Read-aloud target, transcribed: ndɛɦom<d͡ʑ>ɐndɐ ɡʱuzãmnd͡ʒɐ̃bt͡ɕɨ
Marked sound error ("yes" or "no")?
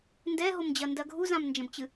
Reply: no